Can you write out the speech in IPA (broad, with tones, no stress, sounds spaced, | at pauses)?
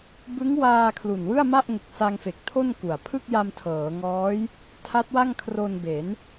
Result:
b ɯ˦˥ ŋ w aː˧ kʰ l u˨˩ n w ɯ˥˩ a̯ m a˥˩ ʔ ŋ e˨˩ k̚ s a˧ ŋ f e˨˩ k̚ tʰ o˥˩ n k u˨˩ a̯ pʰ ɯ˥˩ k̚ j a˧ m tʰ ɤː˩˦ ŋ ɔː˦˥ j | tʰ a˦˥ t̚ w a˥˩ ŋ kʰ r o˧ n b e˩˦ n